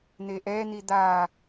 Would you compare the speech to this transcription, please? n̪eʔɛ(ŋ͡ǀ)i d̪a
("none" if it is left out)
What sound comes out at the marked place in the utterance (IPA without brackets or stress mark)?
n̪